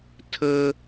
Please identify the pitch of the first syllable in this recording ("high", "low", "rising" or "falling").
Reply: high